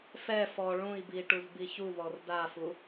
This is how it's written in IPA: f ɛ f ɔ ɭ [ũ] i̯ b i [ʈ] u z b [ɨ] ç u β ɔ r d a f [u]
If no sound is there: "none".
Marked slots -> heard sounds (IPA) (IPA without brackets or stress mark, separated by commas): ũ, ʈ, i, u